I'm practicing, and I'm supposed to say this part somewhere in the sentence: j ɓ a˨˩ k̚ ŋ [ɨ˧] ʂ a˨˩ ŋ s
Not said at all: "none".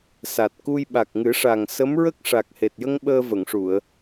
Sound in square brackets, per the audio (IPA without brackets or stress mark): ɨ˨˩˦